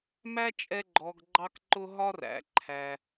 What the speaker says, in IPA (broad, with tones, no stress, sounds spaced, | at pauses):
m æ˥ t͡ʃʼ ɛ˧ ɡ͡ǃ ɔ˩ ɡ ɡ͡ǃ ɑ˧ k ǃ ʊ˧ ɦ ɒ˥ r æ̰˩ ǃʰ æ˩